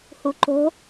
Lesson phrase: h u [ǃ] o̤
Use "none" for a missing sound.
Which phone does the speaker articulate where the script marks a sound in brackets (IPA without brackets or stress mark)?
ǃ